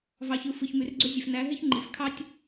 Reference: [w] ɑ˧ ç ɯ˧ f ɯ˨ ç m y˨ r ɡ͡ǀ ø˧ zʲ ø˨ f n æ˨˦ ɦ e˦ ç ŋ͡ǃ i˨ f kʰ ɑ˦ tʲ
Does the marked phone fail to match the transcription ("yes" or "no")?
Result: yes